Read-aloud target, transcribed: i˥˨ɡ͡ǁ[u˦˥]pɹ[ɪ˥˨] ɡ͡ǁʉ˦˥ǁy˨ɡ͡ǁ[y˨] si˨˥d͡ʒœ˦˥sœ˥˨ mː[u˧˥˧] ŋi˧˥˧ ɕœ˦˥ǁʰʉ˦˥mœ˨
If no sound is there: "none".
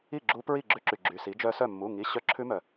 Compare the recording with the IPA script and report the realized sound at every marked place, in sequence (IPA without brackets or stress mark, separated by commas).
u˦˥, i˥˨, y˨, u˧˥˧